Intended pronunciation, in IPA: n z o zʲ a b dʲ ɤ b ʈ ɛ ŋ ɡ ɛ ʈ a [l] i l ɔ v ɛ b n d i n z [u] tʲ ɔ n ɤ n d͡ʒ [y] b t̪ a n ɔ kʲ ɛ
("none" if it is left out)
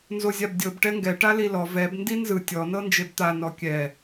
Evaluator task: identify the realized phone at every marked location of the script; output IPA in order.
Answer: l, ɯ, e

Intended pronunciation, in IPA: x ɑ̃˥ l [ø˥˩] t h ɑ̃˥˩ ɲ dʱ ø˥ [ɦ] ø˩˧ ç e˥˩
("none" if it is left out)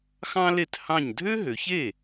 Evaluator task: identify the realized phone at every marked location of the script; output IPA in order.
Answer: e˥˩, ɦ

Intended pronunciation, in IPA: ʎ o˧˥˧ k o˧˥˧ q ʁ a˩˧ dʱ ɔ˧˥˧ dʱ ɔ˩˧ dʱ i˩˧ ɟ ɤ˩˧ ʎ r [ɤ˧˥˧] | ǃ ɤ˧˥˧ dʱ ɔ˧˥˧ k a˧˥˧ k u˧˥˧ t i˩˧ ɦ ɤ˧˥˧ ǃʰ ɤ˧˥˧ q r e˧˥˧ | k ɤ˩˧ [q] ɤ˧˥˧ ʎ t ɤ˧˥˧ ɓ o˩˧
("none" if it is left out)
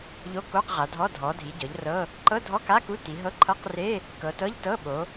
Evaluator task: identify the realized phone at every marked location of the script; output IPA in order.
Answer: ɤ˧˥˧, t

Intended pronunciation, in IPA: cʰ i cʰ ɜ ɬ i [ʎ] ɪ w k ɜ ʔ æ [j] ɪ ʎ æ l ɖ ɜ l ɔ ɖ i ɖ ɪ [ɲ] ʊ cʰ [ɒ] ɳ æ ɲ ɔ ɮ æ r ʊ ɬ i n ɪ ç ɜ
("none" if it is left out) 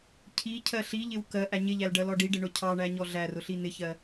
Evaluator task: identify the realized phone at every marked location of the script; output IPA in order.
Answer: ʎ, ɲ, ɳ, ɑ

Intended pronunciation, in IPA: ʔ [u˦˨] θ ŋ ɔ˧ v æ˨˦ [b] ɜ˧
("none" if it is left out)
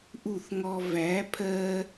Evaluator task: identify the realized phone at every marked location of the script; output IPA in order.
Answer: u˦˨, pʰ

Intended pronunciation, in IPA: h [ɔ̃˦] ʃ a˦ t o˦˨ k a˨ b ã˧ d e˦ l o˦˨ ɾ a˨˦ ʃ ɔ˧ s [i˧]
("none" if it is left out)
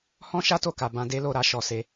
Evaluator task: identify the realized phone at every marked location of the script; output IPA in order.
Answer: ɔ̃˦, e˧

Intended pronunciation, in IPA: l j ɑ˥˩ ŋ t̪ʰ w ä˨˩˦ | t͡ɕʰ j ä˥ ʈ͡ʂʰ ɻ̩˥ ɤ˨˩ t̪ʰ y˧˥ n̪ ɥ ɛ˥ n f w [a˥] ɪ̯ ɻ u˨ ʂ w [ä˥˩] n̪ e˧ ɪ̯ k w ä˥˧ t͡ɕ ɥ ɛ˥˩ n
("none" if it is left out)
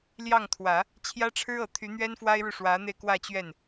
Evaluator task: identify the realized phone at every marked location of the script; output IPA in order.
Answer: a˥, ä˧˥

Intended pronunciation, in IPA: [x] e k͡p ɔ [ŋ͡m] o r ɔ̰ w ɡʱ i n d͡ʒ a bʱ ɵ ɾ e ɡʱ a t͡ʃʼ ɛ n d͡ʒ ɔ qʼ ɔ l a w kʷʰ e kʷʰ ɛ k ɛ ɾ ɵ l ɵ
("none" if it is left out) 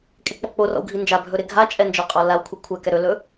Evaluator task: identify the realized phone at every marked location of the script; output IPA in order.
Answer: kʼ, k͡p

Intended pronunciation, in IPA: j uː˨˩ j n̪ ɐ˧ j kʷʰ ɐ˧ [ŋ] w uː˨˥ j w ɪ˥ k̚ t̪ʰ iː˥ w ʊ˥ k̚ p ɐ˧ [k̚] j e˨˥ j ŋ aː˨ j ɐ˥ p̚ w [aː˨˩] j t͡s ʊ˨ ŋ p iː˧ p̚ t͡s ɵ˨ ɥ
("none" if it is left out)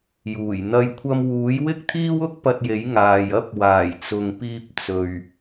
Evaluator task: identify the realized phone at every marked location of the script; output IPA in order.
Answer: m, t̚, aː˨˩

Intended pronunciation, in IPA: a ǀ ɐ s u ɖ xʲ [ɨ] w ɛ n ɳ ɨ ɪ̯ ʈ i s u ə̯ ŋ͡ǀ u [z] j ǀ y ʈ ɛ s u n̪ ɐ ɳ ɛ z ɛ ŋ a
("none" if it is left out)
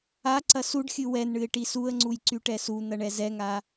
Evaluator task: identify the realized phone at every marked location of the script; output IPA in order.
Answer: ɨ, none

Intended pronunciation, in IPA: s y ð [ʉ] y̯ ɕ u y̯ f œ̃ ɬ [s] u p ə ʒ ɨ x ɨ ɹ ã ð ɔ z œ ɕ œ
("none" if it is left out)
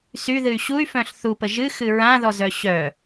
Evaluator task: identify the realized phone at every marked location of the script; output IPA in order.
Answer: ɨ, θ

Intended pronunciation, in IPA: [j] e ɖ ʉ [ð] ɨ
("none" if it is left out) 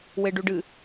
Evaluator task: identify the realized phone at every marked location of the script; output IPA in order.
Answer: w, ɖ

